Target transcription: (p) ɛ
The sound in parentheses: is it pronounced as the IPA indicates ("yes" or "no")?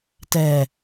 no